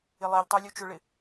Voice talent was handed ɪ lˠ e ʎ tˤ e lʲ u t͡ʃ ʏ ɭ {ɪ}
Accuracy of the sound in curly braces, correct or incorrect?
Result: correct